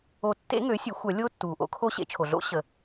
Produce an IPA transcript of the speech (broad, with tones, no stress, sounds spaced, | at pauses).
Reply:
o˨˩˦ tː ḛ˧˥ ŋ ø˩˥ sʲ ø˩˥ xʷ œ˨˩˦ lʲ oː˧˥ tː uː˩ ʔ o̰˩˥ kʰ o˧˥ ɕ ḛ˩˥ t͡ʃʰ o˩ ɮ o̰˧˥ ɕ ə˩